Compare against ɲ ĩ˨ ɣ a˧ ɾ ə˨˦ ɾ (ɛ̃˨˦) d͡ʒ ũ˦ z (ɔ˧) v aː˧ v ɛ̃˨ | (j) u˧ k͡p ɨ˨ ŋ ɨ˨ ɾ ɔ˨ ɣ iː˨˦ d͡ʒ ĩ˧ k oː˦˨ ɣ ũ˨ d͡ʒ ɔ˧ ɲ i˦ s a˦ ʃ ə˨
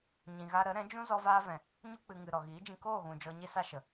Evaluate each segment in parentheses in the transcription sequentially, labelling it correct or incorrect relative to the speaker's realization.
correct, correct, incorrect: ɲ

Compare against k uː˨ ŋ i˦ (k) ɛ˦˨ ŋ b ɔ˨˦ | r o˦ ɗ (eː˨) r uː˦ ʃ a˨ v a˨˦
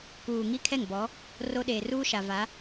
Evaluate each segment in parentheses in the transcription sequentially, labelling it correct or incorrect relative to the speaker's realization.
incorrect: kʰ, correct

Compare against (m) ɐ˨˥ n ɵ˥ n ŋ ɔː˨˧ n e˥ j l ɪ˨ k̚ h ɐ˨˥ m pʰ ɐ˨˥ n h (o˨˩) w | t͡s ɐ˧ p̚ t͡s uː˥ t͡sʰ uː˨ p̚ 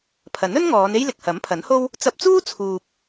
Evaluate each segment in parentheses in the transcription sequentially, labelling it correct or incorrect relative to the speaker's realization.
incorrect: pʰ, incorrect: o˥

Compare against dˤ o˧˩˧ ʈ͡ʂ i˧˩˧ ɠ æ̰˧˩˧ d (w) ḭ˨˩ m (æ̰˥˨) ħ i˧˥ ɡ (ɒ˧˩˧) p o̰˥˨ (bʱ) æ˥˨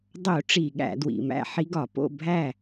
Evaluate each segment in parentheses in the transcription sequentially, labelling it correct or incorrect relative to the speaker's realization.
correct, correct, correct, correct

